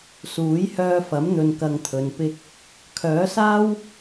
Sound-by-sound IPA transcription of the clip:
suː˨˥jhœː˧fɐ˨˥m n̪ɵ˨nkɐ˨ŋt̪ʰɵ˨npɪ˧k̚ | kʰœː˨˥saː˥w

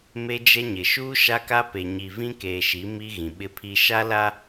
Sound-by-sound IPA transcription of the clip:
me˦d͡ʒɛ˦ ɲɪ˨ʃuː˦ ʃa˦ka˦pe˨ ɲi˨vĩ˦keː˨ ʃi˨˦mi˦ ɣĩ˨ɓɪ˦pʰi˦ ʃa˦la˦

